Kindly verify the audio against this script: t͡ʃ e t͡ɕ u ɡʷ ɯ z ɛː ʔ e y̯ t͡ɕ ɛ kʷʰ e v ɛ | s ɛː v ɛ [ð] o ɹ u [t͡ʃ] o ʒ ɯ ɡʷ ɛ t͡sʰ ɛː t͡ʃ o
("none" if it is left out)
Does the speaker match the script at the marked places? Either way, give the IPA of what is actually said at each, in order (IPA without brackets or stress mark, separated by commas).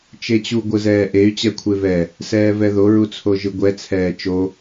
ð, t͡sʰ